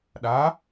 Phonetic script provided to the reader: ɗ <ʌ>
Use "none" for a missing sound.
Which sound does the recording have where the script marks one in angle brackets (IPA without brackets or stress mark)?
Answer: a